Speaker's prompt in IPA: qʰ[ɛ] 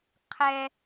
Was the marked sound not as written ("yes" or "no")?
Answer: no